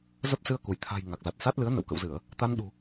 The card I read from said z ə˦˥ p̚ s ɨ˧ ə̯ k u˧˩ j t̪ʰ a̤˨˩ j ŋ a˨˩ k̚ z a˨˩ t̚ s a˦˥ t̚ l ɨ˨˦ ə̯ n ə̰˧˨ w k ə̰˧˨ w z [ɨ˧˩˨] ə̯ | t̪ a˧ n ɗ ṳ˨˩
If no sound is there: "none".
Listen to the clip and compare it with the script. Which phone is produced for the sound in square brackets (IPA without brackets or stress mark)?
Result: ɨ˧˩˨